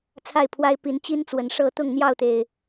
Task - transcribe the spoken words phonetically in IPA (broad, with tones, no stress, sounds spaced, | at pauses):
t͡sʰ a˥˨ ɪ̯ pʰ w a˦ ɪ̯ p i˨˦ n t͡ɕ i˦ n t͡s w ə˨˩ n ʂ ɤ˥˨ t̪ ʊ˥˨ ŋ n̪ j ɑ˥˨ ʊ̯ t̪ e˨˩ ɪ̯